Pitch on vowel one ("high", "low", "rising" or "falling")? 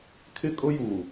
high